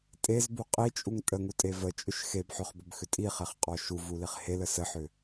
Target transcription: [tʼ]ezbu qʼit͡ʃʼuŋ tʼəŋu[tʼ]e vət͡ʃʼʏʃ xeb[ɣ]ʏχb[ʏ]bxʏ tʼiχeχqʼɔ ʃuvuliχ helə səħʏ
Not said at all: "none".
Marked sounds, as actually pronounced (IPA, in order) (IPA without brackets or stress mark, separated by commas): tʼ, tʼ, ħ, ʏ